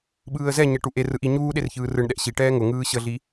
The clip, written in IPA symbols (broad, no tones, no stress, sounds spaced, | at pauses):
ɓ ɯː ə̯ z ɛ ɲ ɛ ʈ u ʔ e r ɯ ʔ i ɲ uː ɗ e r ç ɯː r ɯ ɳ ɗ ɛ ʔ ɕ i ʈ ɛː ŋ ʊ ŋ ɯː ɕ ə ɮ i